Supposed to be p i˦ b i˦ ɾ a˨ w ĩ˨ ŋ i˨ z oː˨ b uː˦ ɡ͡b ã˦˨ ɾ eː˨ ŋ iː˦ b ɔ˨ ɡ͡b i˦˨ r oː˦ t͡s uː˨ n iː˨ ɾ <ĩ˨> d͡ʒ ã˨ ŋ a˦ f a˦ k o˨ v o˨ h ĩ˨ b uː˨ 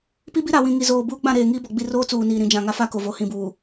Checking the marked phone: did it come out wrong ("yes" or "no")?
no